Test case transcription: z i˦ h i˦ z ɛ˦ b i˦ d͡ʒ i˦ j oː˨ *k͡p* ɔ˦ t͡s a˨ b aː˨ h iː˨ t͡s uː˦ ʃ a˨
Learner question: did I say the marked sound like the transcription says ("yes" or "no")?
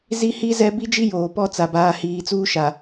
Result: no